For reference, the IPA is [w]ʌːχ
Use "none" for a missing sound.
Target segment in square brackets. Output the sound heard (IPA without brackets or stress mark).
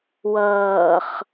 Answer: w